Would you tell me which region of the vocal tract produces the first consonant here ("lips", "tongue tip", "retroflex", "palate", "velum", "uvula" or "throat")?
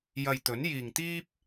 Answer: palate